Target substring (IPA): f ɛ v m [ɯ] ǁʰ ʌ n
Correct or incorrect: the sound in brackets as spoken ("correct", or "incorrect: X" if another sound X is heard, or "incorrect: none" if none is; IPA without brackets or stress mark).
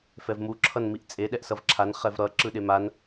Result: incorrect: u